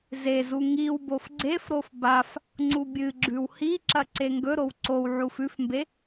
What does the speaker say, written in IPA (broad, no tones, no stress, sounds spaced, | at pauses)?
z e z u ŋ i w b o f ɡ͡ǀ e f ɾ o f b a f | ŋ͡ǀ u bʲ ɨ ɡ͡ǁ ʉ w h i ǁ ɐ ǀ e ŋ ɡ ɵ ɾ o w ǀ o w ʕ u f ʉ f m b e